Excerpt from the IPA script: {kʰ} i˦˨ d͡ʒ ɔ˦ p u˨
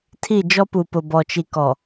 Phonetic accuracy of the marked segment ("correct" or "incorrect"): incorrect